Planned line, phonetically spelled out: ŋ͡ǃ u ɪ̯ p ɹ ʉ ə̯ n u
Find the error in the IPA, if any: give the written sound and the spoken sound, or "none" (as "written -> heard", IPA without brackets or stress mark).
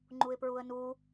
ʉ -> u